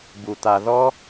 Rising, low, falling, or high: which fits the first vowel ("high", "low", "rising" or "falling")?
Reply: low